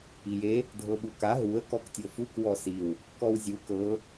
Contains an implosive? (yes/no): yes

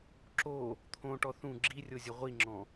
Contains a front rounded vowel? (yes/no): no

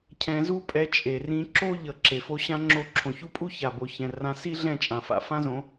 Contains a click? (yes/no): yes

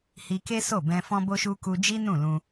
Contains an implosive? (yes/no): no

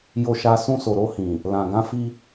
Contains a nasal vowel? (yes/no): yes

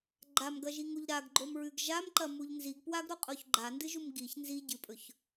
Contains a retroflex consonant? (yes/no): no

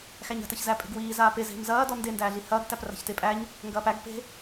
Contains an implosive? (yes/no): no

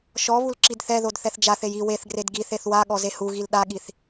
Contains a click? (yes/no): yes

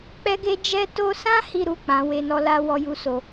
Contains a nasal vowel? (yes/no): yes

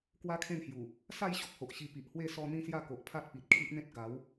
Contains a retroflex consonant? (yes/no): no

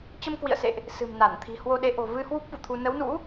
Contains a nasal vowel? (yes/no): no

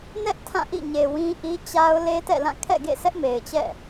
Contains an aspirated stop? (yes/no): yes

